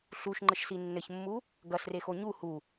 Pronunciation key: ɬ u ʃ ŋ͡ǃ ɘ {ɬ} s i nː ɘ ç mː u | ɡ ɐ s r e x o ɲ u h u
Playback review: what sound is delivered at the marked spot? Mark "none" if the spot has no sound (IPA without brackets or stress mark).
ʃ